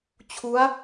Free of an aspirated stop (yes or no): no